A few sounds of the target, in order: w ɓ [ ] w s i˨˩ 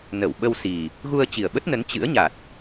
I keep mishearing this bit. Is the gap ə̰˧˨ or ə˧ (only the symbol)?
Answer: ə˧